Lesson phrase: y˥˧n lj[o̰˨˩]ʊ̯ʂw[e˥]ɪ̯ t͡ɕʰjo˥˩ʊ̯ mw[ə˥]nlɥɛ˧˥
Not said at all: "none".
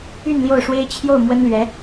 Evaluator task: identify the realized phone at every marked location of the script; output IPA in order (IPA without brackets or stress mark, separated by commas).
o˥˩, e˥, ə˥